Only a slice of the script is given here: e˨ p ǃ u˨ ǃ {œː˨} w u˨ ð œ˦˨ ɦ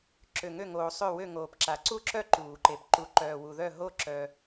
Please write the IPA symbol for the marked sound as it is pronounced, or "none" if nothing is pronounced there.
œː˨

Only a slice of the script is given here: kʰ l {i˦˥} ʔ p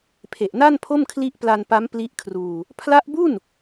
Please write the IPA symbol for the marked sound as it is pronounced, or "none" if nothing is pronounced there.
i˦˥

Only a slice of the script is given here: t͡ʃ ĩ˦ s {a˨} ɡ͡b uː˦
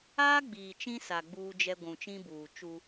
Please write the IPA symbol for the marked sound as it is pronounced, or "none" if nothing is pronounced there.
a˨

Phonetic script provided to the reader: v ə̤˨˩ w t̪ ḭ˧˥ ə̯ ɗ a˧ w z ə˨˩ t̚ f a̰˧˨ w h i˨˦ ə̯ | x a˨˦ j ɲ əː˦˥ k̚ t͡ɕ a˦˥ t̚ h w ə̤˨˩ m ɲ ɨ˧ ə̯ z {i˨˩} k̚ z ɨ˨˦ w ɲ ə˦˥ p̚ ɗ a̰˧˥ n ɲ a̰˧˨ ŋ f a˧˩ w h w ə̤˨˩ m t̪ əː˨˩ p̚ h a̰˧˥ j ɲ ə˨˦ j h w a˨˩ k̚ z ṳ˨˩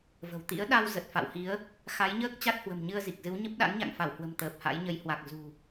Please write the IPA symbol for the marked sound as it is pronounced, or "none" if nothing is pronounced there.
i˨˩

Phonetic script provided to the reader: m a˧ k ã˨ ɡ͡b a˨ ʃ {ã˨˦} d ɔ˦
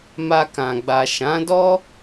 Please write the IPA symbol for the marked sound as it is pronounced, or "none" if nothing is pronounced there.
ã˨˦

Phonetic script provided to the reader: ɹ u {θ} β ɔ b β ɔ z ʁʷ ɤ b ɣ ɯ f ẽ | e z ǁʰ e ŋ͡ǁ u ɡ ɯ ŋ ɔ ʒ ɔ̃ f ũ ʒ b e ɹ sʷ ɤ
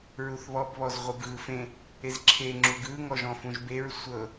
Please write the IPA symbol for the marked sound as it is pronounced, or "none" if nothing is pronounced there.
θ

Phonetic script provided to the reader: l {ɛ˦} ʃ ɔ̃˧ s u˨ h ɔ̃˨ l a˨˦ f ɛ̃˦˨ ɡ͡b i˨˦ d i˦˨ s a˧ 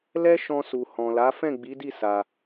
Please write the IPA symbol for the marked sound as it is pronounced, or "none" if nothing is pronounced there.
ɛ˦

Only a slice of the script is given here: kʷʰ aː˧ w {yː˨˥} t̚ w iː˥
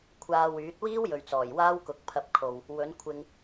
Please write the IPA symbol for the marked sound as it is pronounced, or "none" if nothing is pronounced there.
yː˨˥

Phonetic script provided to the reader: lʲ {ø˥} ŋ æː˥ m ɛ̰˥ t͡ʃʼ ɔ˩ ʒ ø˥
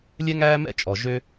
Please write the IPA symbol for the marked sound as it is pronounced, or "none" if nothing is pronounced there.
ɛ˥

